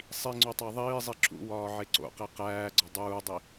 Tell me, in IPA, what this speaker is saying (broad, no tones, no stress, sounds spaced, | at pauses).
sˤ i ŋ͡ǀ o tˤ æ ðˤ iː zˤ i ǁ ṵ w ɒː ʕ e ǀ o̰ q e q æː ɡ͡ǀ ɒ dˤ uː dˤ i